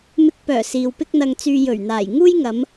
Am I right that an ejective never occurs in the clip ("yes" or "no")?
yes